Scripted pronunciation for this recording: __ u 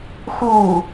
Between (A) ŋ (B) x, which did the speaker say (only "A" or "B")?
B